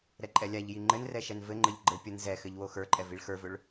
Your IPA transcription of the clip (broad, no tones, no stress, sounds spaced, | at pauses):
ɾ ɛ ǃʼ ɛ lʲ a ʎ j i ŋ͡ǃ ɘ n r ɛ ʃ ɛ n v ɘ ŋ͡ǃ ɘ ʎ ɡ͡ǃ ɘ pʲ ə n z ɛ x ɘ ʎ w o x ə˞ ǃʼ ɛ v i ɭ x ə˞ v ɵ ɭ